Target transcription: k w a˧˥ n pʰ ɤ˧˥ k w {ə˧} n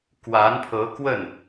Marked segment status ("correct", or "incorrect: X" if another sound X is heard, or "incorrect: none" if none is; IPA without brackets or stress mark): incorrect: ə˥˩